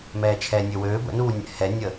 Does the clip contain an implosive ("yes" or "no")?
no